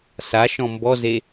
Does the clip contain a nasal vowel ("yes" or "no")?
yes